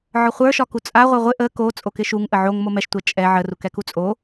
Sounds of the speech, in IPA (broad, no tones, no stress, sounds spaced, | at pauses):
ʕ ɒ χʷ ə˞ ʃ ɒ k u t͡sʼ a ʁʷ ɛ ʁʷ ɪ ʔ ə k o t͡sʼ o k ɪ ʃ u ŋ ʔ ə ʕ o ŋ m o m ɛ ʃ tʷ ɛ t͡ʃʼ ɛ ʕ ə r u k ɛ k u t͡sʼ o